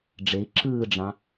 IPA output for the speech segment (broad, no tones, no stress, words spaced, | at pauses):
ɖ͡ʐei̯ ǁɯːɖ͡ʐɑ̃